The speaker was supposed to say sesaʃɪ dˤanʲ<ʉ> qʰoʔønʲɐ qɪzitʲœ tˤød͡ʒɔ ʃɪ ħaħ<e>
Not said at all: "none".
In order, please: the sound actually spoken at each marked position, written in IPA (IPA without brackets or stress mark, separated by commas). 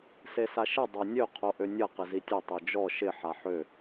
ø, ø